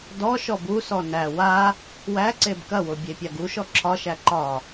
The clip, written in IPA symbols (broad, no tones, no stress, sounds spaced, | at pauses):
d ɔ ʃ ɔ b u s ɔ n æ w a | w æ ǀ e b k ɐ w o bʲ e pʲ a ɡ u ʃ ɔ ǁʰ ɒ ʃ æ ǃ ɒ